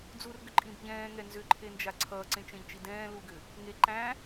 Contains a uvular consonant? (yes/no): no